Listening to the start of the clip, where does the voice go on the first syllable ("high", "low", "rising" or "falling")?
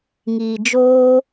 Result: low